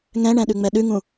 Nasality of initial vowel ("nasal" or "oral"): nasal